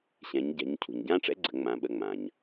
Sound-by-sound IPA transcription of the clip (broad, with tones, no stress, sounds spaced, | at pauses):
ɕ ɛ̃˩˧ ɲ ɟ ɛ̤˩˧ ɲ cʰ ṳ˩ ɲ ɟ ã˥ ʈ͡ʂ ɛ̰˧˥ ɡ͡ǀ ə̤˩˧ ŋ͡m ã˩˧ ɓ ə˩˧˩ ŋ͡m ã˩ ɲ